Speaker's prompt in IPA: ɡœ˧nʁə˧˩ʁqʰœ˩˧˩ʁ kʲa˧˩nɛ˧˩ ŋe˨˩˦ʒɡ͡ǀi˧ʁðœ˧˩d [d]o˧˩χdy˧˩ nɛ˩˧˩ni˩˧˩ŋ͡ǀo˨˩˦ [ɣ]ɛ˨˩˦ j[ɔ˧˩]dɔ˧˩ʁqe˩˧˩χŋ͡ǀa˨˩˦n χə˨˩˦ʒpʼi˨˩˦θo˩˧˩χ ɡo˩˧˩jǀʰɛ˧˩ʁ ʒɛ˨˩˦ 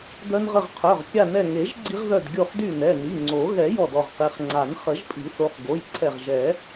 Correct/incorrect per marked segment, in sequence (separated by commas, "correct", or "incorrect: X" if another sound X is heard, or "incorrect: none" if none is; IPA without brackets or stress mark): incorrect: ɡʲ, correct, correct